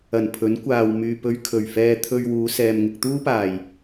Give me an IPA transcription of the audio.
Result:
ɐ˨˩ n pʰ ɵ˨˥ n kʷ aː˨ w m yː˨ p ɵ˧ ɥ kʰ ɵ˨˩ ɥ f ɛː˧ t̪ʰ ɵ˧ ɥ w uː˨˧ s ɛː˨ m ŋ ɪ˨ k̚ t̪ uː˥ p aː˨˩ j

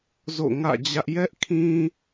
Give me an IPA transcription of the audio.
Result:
z o̰˦˨ ŋ ä̰˦˨ d͡ʑ ä˦ ʔ j ɛ˦ ʔ kʰ ĩ˦

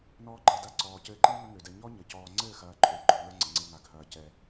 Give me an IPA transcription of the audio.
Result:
n ɔː˧ ɡ͡ǃ ɛ˨ d a˧ ǀ ɔː˨ c ɘː˧ ǃ i˦ ŋ ə˦ ŋ ø˨ d ɛ˧ ɲ ɔ˦ ɲ ə˨ c ɔː˧ ŋ͡ǀ ɘː˦˨ x ɐː˨ ǃʼ ø˨ ɡ͡ǃ ə˞˨ ŋ ə˞˧ ŋ͡ǀ ə˨ ŋ͡ǀ ɘ˧ ŋ a˨ ɡʱ ɐː˨ c ɛ˨

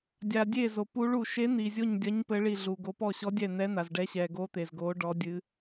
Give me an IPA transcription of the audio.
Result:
dʲ a˨ dʲ e˦˨ z o˨ p u˧˥ ɭ u˨ ʃ e˧˥ n̪ i˨ zʲ o˦˨ ɲ dʲ ɐ˧˥ ɲ p ɘ˧˥ ɭ i˦˨ ɮ u˨ ɡ o˧˥ p ɔ˦˨ ɕ ɔ˧˥ dʲ ɛ˦˨ n̪ ɛ˧˥ n̪ a˨ z ɖ ɛ˧˥ ɕ ɛ˨ ɡ o˧˥ t̪ e˨ z ɡ o˧˥ ɖ ɔ˧˥ dʲ ɨ˧˥

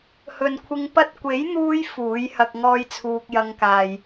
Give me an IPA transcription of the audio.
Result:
h ɵ˨ n kʷʰ ɪ˧ ŋ p ɐ˥ t̚ kʷ e˨˥ j n̪ uː˧ j f uː˨˥ j h ɐ˧ k̚ ŋ ɔː˥ j t͡sʰ uː˧ k̚ j ɐ˧ ŋ k aː˨ j

